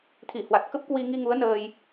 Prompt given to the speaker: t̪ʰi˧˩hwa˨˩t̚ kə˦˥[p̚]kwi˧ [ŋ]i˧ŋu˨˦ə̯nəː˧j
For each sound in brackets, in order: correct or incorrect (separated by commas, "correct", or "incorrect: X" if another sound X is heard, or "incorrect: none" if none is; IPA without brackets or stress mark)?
correct, correct